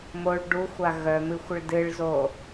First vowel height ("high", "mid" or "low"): mid